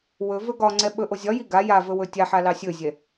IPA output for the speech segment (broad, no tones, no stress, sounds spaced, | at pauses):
w ɵ v ɵ ɡ ɒ ŋ͡ǀ ɛ ɓ ɵ ʔ o zʲ ɒ j i ɡ a j a v ɵ w ɵ tʲ a ħ a l ɑ sʲ ɵ zʲ ɛ